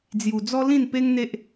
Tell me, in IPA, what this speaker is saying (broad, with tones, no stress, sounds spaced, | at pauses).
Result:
d͡z j u˨˩ d͡z ɔ˦ l ĩ˥˧ n p e˦ ŋ n̪ e˦ ʔ